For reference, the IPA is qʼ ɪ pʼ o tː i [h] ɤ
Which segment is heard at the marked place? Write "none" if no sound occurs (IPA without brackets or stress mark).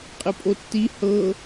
h